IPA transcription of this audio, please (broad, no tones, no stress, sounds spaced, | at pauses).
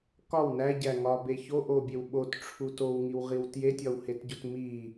k ɒ w n æ ɟ æ ŋ ɒ b e ç o ʔ o bʲ e w ɓ o t ʈ͡ʂʰ u t o w ŋ i w ʁ i w t j e tʲ ɒ w h e t ɟ o t m i